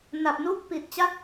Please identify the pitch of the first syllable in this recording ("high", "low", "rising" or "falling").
low